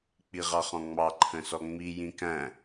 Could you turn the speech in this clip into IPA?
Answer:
k͡p i ʁ ɑ χ ɔ̃ ŋ͡m ɑ ǃʰ ə̃ s ɔ ŋ͡m i j ĩ k æ̃

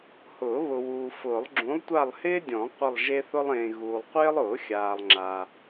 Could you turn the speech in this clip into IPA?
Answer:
h ʊː˨˩˦ β ʊ˨ w uː˨ f ʊː˨˩˦ lˠ ɡ͡ǁ ũ˨˥ lˠ tʷ a˦˨ lˠ h ɪː˥ dʲ ɔ̃˨˩˦ qʷ ɪ˦˨ lˠ ʒ e˥ θ ʊ˥ lˠ ẽː˨ ɣ uː˨ lˠ qʷ ɪː˥ lˠ ʊː˨˩˦ xʲ aː˨ lˠ ŋ͡ǁ a˨

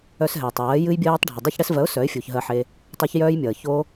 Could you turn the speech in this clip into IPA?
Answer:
œ˧ s ɦ ɛ˨ tˤ ɜː˨˦ j ɨ˦ j bʲ ɜː˦ tˤ ɖʱ ɨ˨ dˤ e˧ ç ɽ ɛ˧ s v ɜ˨˦ ʊ̯ s œ˨˦ ɪ̯ fʲ u˨ ç ɦ ɜ˧ ħ e˧ | tˤ ɜ˦ ç j œː˦ j mʲ ʌː˨ ç o˦

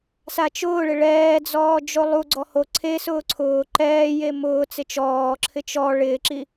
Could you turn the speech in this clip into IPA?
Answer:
s a t͡ʃ ʊː ɭ ɪ ɭ ɛː d͡z ɔː d͡ʒ o lˠ u ɡ͡ǀ ɔ h o ǀʰ e s ʊː ǀʰ ʊː ǃ ɛː j e m ʊː t͡s ɪ t͡ʃ ɔː ǁʰ ɪ t͡ʃ ɔ ɭ ɪː ǁ i

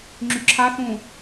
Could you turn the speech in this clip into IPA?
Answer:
ŋ͡ǁ y ǁʰ a θ ũː

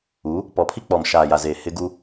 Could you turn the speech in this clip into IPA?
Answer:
u˨˦ | p ɔ˨ pʰ i˦ k͡p ɔ˨ m ʃ aː˨ j a˨ z eː˨ h ɪ˦ ɡ u˦

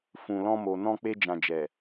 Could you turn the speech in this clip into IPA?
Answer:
f ũ˨ l ɔ̃˧ m o˨ n ɔ̃˧ k͡p e˧ d͡ʒ ã˨ d͡ʒ ɛ˨

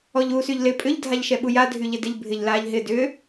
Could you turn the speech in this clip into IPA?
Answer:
ɔ ʎ u s y ʎ l ɪ pʼ ʏ ʎ dʱ a ʎ ʃ ɛ ɓ u j a dʱ y ʎ ɪ d ɪ ʎ bʱ ɪ ʎ l aː ʎ ɦ ɪ d ʏ

